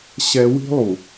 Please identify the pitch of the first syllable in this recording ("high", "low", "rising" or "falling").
high